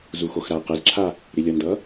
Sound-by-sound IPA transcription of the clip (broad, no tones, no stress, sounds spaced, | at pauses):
z u x o x ɾ a ə̯ q ɛ z ǁʰ a | ɾ i lʲ ʌ n d ʌ